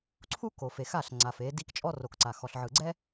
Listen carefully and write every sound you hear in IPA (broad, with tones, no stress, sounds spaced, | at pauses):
ǀʰ u˦ k o˨ f e˨ x a˦˨ ɬ ŋ͡ǀ a˨ f e˨˦ d i˦ k t͡ʃʼ ɔ˦ r o˨ k ǀ a˨ x ɔ˨ ɬ ʕ ɯ˨ ɡ͡ǀ ɛ˦